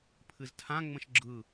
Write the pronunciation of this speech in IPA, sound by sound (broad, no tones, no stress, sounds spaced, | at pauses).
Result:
pʰ ɨ z tʰ ã ŋ͡m ə̃ ʃ ɡ͡ǁ ɯ